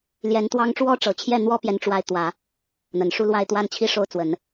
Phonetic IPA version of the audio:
l j ɛ˧˥ n t̪ w ɑ˥ ŋ ʈ͡ʂ w ɔ˥ ʈ͡ʂ ɤ˨˩ t͡ɕʰ j ɛ˥˩ n̪ w ɔ˥ p j ɛ˧˥ n ʈ͡ʂ w a˧˥ ɪ̯ t̪ w ä˨˩˦ | n̪ ə˨˩ n ʂ u˥˧ l w a˥˧ ɪ̯ t̪ w a˥˧ n t͡ɕʰ i˥˧ ʂ o˥˩ ʊ̯ t͡s w ə˨˩˦ n

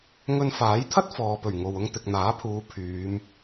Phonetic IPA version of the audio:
ŋ ɵ˧ n f aː˨˥ j t̪ʰ ɐ˥ t̚ f ɔː˨ p ɵ˨˩ ɥ ŋ o˨ w ʊ˧ ŋ t̪ ɪ˨ k̚ n̪ aː˨˥ pʰ uː˨˧ pʰ yː˨˧ m

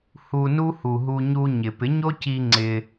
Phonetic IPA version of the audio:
h u˧ n u˦ h u˨ ɦ u˧ ɲ u˧ ɲ ɪ˨ p ɪ˨˦ ɲ o˦ c i˧ ŋ͡ǀ ɪ˧

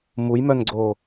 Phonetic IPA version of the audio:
m u j m œ n ɡ͡ǀ oː

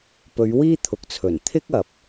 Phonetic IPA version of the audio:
p ɵ˨˧ ɥ w iː˥ t̪ʰ ʊ˨ k̚ t͡sʰ ɵ˨˩ n t̪ʰ ɪ˥ k̚ ɐ˨ p̚

